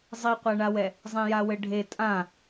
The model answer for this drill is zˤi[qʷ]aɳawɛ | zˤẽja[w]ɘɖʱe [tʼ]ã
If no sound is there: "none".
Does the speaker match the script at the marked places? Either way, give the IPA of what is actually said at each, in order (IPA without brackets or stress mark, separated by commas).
qʷ, w, tʼ